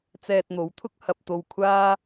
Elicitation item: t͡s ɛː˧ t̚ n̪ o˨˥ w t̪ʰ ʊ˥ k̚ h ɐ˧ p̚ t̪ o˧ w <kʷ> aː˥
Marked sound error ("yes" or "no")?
yes